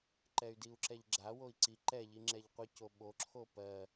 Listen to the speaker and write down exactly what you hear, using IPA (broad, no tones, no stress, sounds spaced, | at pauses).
ǃ ɛ y̯ d i u̯ ǁ ɛ ʎ ɡ͡ǁ a w o i̯ ǀ i ǃ ɛ ʎ i ŋ͡ǁ ɛ ʎ qʷ i c o ɓ o ǁʰ o p ɜ